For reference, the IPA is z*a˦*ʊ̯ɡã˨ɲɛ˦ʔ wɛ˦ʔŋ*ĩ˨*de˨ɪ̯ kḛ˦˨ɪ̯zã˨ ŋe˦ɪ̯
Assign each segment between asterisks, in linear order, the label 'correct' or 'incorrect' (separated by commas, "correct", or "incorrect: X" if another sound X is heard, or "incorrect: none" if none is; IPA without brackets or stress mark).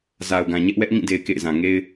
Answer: incorrect: a˨, incorrect: ĩ˦˨